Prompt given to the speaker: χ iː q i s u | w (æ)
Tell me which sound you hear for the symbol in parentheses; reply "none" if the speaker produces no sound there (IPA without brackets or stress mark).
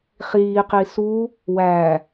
æ